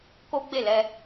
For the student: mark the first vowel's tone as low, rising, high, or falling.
high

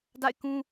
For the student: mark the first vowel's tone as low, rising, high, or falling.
falling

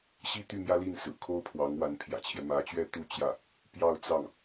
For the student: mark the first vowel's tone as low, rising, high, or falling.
falling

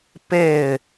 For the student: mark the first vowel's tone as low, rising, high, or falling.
falling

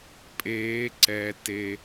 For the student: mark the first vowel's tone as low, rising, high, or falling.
rising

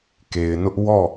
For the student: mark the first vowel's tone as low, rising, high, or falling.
low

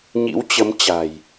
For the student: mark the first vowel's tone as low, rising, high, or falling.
rising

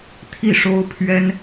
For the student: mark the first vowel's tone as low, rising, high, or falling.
falling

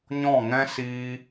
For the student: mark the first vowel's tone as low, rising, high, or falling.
falling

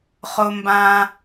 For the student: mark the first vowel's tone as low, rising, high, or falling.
low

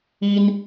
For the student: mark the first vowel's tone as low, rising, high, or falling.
high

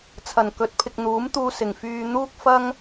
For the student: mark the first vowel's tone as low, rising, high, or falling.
low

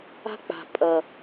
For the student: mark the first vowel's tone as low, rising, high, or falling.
high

